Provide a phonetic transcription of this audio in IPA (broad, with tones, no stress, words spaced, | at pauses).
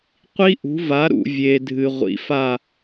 qʷi˦˥ʔṳ˩˥va˩˥ ɾṵ˩vʲe˩dʱɨ˩ ʁʷḭ˩fa˧˩